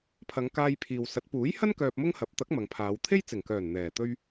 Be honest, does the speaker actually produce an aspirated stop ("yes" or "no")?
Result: yes